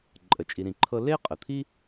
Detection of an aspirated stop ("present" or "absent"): present